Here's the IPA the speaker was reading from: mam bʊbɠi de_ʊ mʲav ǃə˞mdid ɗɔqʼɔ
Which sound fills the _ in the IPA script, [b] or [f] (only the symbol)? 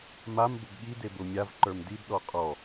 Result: b